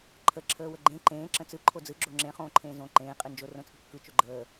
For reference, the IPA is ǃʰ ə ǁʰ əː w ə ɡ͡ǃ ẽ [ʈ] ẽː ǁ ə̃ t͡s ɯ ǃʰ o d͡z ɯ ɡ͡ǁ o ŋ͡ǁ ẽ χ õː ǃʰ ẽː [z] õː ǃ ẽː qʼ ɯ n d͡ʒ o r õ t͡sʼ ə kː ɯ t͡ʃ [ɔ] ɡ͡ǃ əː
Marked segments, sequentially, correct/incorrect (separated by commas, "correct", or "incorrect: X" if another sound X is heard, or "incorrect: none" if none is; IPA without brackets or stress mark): incorrect: ǃ, correct, incorrect: o